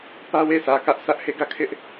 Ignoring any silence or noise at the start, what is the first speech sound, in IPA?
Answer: p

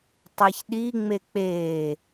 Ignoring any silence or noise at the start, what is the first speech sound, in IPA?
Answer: tˤ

